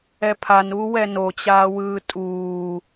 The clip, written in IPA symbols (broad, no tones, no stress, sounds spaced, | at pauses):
ɛ pʰ a n uː w ɛ n o t͡ɕ aː w ɯː tʼ uː